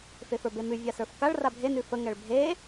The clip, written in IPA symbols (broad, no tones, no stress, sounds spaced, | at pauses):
f e f ə˞ b e m ʉ vʲ a s ə˞ f k a ɭ r a bʱ e n ʉ f ə ŋ ɛ ɭ bʱ e